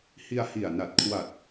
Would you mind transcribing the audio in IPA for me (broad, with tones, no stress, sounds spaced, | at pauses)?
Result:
h i˧ a̯ h i˨˩ a̯ n a˨˩ t̚ kʰ w a˨˩ t̚